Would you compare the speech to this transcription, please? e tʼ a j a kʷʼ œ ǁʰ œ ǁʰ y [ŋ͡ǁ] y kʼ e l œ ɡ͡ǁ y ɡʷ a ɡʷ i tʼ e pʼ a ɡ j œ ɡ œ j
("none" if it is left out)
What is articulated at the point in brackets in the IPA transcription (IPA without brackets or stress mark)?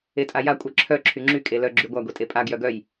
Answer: ŋ͡ǁ